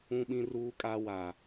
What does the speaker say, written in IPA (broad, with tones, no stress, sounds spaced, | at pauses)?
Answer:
ũ˦ ɓ ĩ˦ r uː˦ kʼ a˦ w a˨